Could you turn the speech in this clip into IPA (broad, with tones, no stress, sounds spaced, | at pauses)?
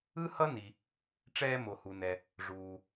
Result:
ɯ˥ h ʌ˥ n i˩ | ʈ͡ʂ ɛː˧ m o˩ h u˩ n ɛ˩ | ʐ uː˩